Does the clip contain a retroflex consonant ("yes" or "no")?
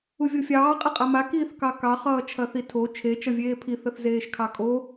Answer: no